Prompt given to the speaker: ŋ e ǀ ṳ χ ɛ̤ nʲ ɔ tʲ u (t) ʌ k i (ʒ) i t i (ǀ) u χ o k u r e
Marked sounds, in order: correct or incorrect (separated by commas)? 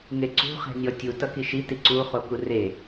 correct, incorrect, correct